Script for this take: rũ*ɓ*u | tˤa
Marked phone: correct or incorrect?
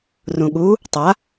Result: incorrect